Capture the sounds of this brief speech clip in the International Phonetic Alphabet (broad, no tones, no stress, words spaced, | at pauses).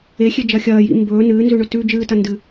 exʲed͡ʒɐ xʲɐːjḭ mbɵː nɨːnzʉɳɵ tʉ d͡ʒɨːtɐ ndɨ